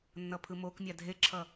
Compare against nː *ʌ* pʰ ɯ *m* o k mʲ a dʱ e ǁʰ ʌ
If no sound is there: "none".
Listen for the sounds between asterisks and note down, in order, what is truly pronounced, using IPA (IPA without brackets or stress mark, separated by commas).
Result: ʌ, m